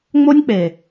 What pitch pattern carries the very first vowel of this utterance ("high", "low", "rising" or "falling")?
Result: high